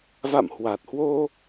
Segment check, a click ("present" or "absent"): absent